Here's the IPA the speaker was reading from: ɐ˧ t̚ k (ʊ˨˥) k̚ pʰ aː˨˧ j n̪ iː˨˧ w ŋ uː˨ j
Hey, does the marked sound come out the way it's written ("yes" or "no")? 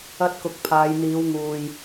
no